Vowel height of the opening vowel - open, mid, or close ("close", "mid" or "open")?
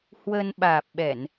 mid